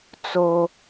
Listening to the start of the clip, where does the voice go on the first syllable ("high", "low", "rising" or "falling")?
high